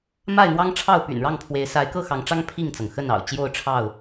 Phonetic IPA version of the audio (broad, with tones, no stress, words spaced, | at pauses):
ma˥˨ɪ̯n̪wɑ˦ŋʈ͡ʂʰɑ˥˨ʊ̯ py̰˨˩nɻɑ˥˨ŋpʰwe˨˦ɪ̯ sa˨˦ɪ̯kɤ˥˨ xɑ˨˦ŋʈ͡ʂɑ˦ŋ pʰi˥˨ŋt͡sɤ˩ŋxə˥˨n ɑ̰˨˩ʊ̯ t͡ɕjo˥˨ʊ̯ ʈ͡ʂʰɑ˥˨ʊ̯